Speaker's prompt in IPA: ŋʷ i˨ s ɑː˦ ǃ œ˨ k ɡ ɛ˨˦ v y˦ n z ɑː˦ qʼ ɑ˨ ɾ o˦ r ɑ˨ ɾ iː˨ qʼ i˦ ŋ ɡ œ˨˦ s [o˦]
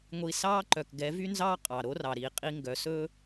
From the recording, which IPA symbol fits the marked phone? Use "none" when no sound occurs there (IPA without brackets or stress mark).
ɵ˦